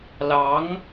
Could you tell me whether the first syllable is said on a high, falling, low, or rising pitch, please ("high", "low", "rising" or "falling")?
rising